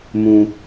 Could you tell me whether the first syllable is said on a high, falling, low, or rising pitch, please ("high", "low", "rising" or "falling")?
high